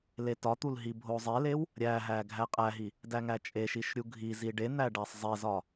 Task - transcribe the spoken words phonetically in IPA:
l e t ɒ t̪ u l ɦ i bʱ o zˤ e l e w | ɾʲ æ ɦ æ ɡʱ æ qʼ æ ɦ i | d æ ŋ æ t͡ʃʼ e ʃ i ʃ ɾʲ u ɡʱ i z i ɖ e n̪ æ ɖ æ sˤ zˤ e z ɒ

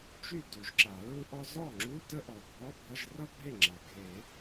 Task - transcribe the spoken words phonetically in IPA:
t͡ʃ y˥˩ d u˨˩˦ ʒ ǁ a˨˩˦ ɹ u˥ ʔ ɔ˥ z ɔ˥˩ ŋ͡ǁ u˧˥˧ t ə˥ ʔ ɔ˨˩ ɡʱ ɔ˧˥˧ bʱ ʌ˧˥˧ ʒ r ʌ˥ bʱ e˥˩ ŋ͡ǁ a˨˩ ɡʱ e˨˩˦

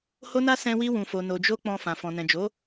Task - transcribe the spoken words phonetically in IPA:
h o˧ n a˧ s ɛ̃˧ w i˧ w ũ˨ f o˨ n o˨ d͡ʒ o˧ k͡p ɔ̃˧ f ã˨ f ɔ̃˨ n ɛ̃˨ d͡ʒ o˨˦

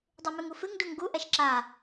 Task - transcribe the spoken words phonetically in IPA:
dˤ ʉ m ʉ ŋ u f ɨ ŋ d u ŋ ɡ u ʔ ɛ ʃ ǁ a

